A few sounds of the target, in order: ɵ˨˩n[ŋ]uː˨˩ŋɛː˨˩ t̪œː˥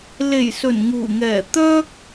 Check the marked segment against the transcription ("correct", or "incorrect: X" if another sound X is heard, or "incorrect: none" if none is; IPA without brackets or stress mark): correct